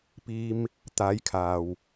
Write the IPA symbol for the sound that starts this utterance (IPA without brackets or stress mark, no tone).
p